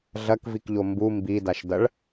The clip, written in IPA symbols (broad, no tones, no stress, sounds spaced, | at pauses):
ɮ ɐ k v i k ʎ o m b u m b i d a ʃ d ɐ ɭ